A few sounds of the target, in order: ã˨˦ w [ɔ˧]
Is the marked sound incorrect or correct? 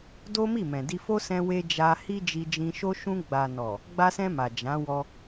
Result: correct